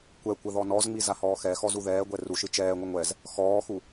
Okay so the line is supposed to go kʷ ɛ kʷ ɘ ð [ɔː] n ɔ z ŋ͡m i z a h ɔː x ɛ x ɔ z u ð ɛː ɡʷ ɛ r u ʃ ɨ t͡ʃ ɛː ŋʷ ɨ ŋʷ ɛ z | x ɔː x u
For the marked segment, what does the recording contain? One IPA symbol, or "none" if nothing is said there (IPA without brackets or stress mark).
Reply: ɔ